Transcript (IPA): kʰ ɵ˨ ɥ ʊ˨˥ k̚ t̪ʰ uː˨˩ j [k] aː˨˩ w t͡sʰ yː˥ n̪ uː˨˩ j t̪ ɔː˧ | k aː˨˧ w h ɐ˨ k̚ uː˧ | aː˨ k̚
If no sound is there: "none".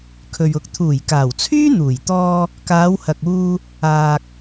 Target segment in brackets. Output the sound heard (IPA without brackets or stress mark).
k